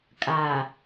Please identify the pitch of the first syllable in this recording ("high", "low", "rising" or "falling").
low